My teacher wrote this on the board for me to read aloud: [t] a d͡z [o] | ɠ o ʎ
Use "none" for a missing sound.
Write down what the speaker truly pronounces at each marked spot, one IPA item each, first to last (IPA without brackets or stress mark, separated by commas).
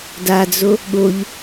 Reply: d, o